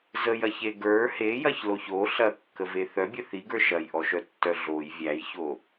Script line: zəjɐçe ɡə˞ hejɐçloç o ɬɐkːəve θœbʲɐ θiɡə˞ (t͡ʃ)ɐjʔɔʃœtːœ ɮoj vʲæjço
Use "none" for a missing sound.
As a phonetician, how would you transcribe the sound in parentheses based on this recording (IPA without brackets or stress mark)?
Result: ʃ